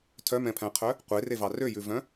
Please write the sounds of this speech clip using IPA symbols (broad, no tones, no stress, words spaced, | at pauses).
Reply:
tʰœmɛ̃pʰæ̃qʰœ | qʷerevɑ røjʉvœ̃